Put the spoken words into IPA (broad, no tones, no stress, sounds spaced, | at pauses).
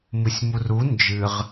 m ɨ sʲ m u r u n d͡ʒ ɨ ʁ